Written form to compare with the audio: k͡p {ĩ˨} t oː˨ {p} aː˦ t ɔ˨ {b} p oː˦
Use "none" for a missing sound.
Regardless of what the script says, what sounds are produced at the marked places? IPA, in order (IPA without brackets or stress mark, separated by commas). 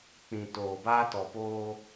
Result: ĩ˨, b, none